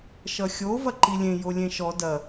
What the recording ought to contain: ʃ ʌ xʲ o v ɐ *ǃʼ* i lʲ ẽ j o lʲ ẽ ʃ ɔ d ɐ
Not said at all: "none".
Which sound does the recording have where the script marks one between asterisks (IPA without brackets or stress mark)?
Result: ǃ